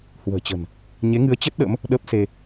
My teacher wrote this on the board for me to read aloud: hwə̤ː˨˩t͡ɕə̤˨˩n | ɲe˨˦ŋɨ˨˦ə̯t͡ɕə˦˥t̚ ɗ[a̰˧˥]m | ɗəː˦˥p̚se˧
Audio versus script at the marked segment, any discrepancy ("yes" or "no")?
yes